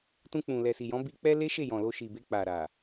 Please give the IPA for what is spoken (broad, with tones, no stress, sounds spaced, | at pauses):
t ũ˧ k͡p ũ˨ l ɛ˨ s i˨ j ɔ̃˨˦ b i˧ k͡p ɛ˦ l e˦ ʃ e˦˨ j ɔ̃˨ l o˧ ʃ i˨ b e˧ k͡p a˨ ɾ a˨